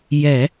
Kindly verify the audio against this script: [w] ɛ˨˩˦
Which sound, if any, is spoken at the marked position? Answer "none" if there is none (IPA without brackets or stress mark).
j